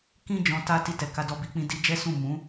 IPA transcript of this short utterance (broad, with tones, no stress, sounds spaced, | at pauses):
k ĩ˦ d͡ʒ ɔ̃˧ t a˧ t i˧ t ɛ˨ k a˧ d ɔ˧ b i˧ k͡p ĩ˧ d i˧ d͡ʒ ɛ˦ s ũ˦˨ m ũ˨˦